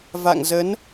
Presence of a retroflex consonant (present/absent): absent